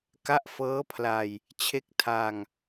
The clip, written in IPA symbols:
ka˦˥ʔfɤː˦˥pʰla˧j | t͡ɕʰe˦˥k̚tʰa˧ŋ

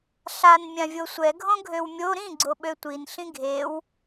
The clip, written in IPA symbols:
ɬan mʲãvʲosʷɛ ɡʱõɡʱøwmʲo ɾĩ ɡ͡ǀoɓøtʷin ɬĩɡʱew

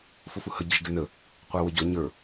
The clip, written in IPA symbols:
fʊfuhə ɟəʒɡɪnə | qʷæwəɟɔ ɲə˞

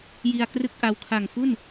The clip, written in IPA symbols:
ji˧a̯krɯ˥˩k̚ʔa˧w kʰa˨˩ŋfu˥˩n

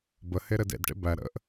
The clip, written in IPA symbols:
bəheɾɘd ḛdʈḛ bæ ɾə̰ʔ

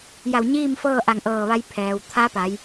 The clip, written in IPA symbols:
ja˧˩wɲiː˥˨mfɤː˥˨ʔa˧˩ŋ ʔɤː˧˩ʋa˧j pʰɛː˩w t̪ʰa˧˥pa˩˧j

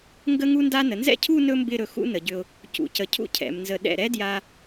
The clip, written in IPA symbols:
ŋɡə˥ŋu˥nda˥ nə˩˧nzɛ̰˥˧cʰu˥˧ nɵ˥mbɪ˥˧ɾɵ˧˩ xṵ˥nə˩˧ɟʏ˧ʊ̯ | cṵ˩˧cə˩˧cʰṵ˧ cʰɛ̰˩˧mnzə˧ ɗɛ̰˧˩ɾɛ˥dja˧

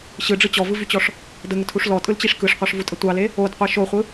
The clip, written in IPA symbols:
ɕɯɖ͡ʐɯ t͡ɕɔvɯvyt͡ɕɔʂ | dəŋətʰuʂ lɔtʼɯlt͡ɕiʂ kɯʂqʷɑʂvutʼə tʷɑle | odqʷe ʃoχʷɯ

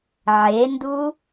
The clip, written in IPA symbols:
ʕendu

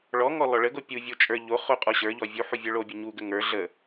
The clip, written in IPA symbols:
ɭɔŋɔ lɔɭəɡo pʲuvʲo t͡ʃʼə˞ ʎo χoqʼɔɕə˞ʎɔ vʲu ħuvʲə˞ɭobʲɔ ɲuɡə ŋə˞ ɮə

